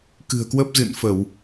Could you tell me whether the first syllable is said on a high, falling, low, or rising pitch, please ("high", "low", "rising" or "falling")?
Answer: low